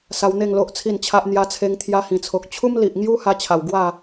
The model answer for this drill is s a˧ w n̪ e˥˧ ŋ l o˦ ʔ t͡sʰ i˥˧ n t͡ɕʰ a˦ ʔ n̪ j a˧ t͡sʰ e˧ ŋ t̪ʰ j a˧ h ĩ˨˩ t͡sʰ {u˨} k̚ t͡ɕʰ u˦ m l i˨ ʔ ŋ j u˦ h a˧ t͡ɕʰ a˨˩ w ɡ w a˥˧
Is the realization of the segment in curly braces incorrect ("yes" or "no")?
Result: yes